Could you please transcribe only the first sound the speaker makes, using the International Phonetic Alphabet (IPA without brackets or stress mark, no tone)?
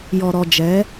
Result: j